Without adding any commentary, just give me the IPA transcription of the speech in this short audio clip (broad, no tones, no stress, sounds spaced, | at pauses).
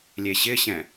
lʲ e ɕ ɪ ɕ ɛ̃